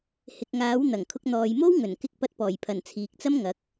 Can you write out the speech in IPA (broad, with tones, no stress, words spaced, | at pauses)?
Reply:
hɪ˨k̚ŋaː˨˥wn̪ɐ˨˩ŋkʰʊ˧k̚ n̪ɔː˨jmo˥wŋɵ˨˩n kɪ˧k̚pɐ˧t̚pɔː˨˩jpʰɐ˨˩n t͡sʰiː˨k̚t͡sɐ˥mŋɐ˨˥k̚